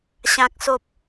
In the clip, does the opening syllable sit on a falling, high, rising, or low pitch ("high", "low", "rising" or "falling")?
low